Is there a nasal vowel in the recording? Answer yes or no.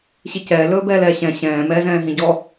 yes